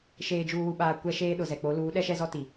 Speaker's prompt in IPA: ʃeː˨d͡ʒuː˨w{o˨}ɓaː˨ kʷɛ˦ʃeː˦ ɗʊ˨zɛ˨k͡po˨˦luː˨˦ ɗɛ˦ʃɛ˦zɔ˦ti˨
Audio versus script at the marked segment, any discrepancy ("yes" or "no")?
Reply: yes